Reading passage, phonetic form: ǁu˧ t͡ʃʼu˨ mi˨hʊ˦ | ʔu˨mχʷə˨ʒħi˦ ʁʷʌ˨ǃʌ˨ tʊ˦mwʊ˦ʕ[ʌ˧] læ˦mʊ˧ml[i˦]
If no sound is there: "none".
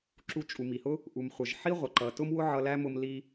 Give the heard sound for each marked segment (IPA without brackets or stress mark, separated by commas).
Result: ʌ˧, i˧